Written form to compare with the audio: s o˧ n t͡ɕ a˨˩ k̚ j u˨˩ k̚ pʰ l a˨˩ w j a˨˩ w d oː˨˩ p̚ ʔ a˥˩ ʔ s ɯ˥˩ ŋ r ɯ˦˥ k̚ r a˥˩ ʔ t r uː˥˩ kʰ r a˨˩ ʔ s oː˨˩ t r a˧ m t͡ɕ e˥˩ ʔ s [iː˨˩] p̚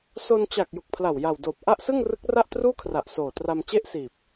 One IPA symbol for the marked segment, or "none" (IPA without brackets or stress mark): iː˨˩